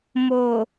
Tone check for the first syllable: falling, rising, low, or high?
low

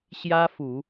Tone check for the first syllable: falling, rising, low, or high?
high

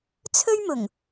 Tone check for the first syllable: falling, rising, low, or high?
high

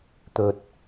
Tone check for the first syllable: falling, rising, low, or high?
low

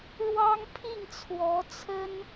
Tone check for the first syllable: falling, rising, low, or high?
high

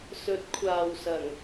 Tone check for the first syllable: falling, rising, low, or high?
rising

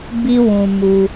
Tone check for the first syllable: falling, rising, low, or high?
high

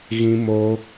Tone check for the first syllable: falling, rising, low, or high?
high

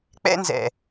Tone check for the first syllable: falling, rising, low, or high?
high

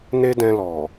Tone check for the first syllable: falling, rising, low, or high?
high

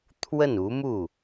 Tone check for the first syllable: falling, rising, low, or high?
falling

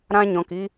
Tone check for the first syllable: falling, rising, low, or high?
high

